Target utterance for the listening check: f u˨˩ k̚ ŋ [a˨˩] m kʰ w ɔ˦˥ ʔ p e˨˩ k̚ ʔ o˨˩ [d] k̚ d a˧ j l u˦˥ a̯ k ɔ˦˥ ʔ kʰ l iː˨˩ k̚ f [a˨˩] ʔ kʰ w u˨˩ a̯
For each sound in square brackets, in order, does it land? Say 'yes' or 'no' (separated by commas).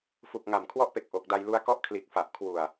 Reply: yes, no, yes